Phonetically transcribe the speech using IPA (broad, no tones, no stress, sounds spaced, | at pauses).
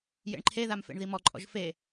j ḛ ɳ ǃʰ e ð a m f ḛ ɳ ð i m ɔ ǃʼ ɔ̰ ʒ f e